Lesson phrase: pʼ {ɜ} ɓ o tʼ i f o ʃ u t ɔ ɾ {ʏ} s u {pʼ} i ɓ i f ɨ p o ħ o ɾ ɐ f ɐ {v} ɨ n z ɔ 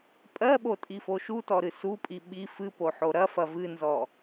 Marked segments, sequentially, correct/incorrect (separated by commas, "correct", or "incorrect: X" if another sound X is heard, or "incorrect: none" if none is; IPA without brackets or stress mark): correct, incorrect: ɨ, correct, correct